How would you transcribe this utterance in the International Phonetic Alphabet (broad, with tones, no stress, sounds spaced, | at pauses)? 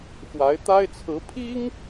x w a˧˥ ɪ̯ t̪ a˥ ɪ̯ t͡sʰ ɹ̩˧˥ pʰ i˥ ŋ